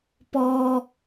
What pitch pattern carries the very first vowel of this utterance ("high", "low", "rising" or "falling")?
high